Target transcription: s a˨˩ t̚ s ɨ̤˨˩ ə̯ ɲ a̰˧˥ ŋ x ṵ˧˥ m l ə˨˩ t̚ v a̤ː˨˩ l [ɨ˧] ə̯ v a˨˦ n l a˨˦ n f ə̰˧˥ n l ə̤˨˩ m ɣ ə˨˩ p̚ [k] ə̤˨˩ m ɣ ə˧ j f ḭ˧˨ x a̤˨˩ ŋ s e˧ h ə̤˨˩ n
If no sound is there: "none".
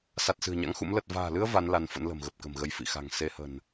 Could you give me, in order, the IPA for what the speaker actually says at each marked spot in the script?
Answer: ɨ˧, k

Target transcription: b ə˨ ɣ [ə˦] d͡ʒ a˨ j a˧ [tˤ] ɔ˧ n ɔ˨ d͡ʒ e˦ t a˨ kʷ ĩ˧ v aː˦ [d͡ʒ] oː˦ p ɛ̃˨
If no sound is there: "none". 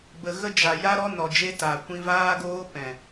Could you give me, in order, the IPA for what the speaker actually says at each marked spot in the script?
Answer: ə˦, ɾ, ɡ

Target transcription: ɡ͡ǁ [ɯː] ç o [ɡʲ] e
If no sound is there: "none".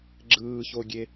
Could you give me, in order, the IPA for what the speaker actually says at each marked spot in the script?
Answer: ɯː, ɡʲ

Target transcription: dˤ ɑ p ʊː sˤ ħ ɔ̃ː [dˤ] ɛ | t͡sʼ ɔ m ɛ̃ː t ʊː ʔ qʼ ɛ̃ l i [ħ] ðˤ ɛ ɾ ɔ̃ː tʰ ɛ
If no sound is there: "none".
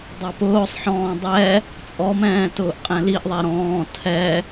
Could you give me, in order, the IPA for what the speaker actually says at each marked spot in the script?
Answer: dˤ, ʔ

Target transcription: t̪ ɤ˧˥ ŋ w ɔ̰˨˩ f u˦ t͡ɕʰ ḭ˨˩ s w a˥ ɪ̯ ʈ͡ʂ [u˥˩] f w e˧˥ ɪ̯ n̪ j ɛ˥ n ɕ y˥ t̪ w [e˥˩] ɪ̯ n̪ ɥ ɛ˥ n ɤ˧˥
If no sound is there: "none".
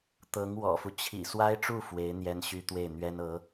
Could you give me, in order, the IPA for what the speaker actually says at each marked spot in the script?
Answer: u˥˩, e˥˩

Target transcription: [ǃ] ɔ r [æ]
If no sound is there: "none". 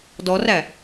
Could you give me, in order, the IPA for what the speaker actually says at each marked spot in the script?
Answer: d, æ

